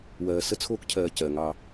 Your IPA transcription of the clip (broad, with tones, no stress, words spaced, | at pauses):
wɜː˨sə˦t͡sʰoː˦kcʰɜː˨ cɜ˨ŋɑ˦